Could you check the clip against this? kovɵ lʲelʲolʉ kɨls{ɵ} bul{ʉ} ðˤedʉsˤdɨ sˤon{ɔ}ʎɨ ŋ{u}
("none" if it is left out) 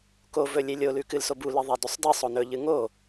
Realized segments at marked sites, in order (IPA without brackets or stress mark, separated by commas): o, ɨ, ɵ, o